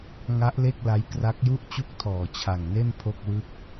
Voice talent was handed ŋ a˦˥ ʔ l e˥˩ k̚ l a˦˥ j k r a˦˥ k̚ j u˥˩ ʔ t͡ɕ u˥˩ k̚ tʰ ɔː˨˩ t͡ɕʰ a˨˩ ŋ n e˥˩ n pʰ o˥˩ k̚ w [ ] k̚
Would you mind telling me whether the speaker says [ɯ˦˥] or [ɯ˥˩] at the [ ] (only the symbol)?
ɯ˥˩